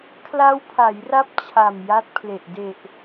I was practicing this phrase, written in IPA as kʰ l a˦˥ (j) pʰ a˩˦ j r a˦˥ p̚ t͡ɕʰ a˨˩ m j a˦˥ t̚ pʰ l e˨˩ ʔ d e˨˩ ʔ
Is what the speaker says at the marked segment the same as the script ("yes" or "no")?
no